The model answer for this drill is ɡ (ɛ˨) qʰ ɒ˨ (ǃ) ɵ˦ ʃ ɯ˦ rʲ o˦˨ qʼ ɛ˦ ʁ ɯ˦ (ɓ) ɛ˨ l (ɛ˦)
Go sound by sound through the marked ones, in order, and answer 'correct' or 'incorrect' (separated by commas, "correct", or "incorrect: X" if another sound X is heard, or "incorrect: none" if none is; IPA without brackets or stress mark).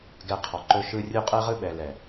correct, correct, correct, incorrect: ɛ˨